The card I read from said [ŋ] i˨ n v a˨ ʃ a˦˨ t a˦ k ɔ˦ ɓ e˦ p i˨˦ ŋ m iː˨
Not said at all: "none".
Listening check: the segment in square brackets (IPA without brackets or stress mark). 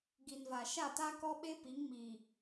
ɡ